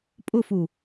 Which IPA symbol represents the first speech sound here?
pʼ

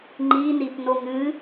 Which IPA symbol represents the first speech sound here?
ŋ͡ǃ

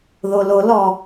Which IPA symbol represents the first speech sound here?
ð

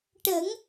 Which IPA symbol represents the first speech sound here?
ʈ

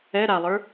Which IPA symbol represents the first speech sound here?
ɛ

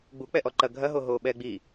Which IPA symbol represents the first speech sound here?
ɡ͡b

